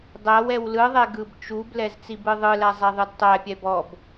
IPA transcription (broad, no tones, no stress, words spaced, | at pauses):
dˤæwɛw lɯðˤɛ ɡɯbt͡ʃublɛz t͡sibɯðˤɯlæ zˤæðˤɯdtˤæpʲɛ bɔb